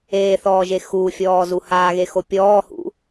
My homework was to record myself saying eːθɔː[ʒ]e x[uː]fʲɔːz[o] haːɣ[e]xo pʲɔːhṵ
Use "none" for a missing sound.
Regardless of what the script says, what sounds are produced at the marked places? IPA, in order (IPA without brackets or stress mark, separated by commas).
ʒ, uː, u, e